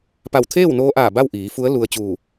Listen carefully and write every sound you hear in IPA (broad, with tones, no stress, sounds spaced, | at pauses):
p a˧˩ w t̪ʰ eː˥˨ w n oː˧ ʔ aː˧˩ b a˥˨ w ʔ iː˩˧ f u˧˥ ə̯ l u˧ ə̯ t͡ɕ uː˧˩